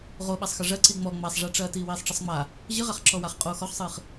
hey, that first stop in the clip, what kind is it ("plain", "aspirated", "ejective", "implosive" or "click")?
implosive